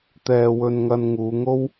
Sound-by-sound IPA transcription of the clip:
t̪ ɛː˧ w ɵ˧ n ŋ ɐ˧ n ŋ uː˨˧ ŋ o˥ w

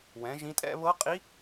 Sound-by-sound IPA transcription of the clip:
w ɛ̃˩˥ ʒ ĩ˧˥ tʼ ɛ̰˥˧ β ɤ˧˥ qʼ i˧˥

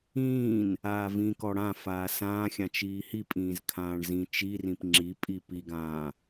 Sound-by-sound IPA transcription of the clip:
ĩː n | aː v ĩ k ɔ ɽ ã f aː s ãː xʲ ã t͡ʃ iː h i pʼ ĩː z kʰ ãː ɳ z ĩ t͡ʃ i r ĩ p ŋ͡ǁ i pʼ i p i ɡ ãː

